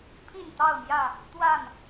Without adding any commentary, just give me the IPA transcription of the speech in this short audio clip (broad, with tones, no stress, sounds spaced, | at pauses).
pʰ i˥˨ n t̪ ɑ˥˨ ʊ̯ m j ä˥˨ | t̪ w a˥˨ n